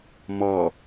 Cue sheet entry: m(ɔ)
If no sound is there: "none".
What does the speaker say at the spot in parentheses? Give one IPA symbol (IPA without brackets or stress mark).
ɔ